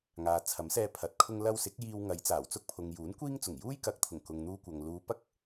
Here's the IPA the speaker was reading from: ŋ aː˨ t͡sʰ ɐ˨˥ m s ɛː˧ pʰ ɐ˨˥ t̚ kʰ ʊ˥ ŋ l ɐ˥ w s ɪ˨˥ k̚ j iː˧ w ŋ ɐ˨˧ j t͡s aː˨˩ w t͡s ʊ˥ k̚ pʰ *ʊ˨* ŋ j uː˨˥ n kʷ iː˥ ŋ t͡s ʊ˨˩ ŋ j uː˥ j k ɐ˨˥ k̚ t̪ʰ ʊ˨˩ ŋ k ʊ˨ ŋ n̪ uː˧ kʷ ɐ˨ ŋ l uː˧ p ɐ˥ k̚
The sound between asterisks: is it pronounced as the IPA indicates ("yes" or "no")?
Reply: yes